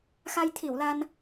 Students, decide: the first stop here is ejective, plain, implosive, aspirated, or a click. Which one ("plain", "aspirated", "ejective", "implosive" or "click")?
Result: aspirated